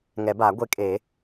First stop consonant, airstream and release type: plain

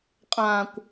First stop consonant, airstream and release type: ejective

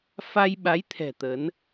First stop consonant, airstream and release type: implosive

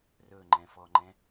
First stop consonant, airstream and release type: click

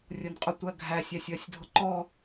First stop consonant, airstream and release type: ejective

